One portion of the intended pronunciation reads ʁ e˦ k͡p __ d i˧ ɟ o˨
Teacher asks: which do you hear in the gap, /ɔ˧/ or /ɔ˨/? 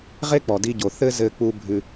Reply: ɔ˨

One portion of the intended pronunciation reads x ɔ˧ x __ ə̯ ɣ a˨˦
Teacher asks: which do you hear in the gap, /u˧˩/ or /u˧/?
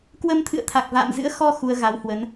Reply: u˧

